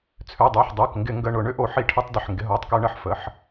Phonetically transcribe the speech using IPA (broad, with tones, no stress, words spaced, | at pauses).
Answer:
t͡sʰø˩˧˩dˤʏː˩˧˩ħ dˤʊː˩˧˩k ŋɡɪ˧˩˧ŋɡə˩˧˩ ɳʊ˧˩˧ ɳʏ˧˩˧ʔo˧˩˧ ħi˧˩˧ʈʰʏ˧˩˧tˤdɪ˩˧˩ħ ŋɡɪ˩˧˩ɦoː˩˧˩tˤkø˧˩˧ ɳə˩˧˩ħ fə˩˧˩ħ